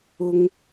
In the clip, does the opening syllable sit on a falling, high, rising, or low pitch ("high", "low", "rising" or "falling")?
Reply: low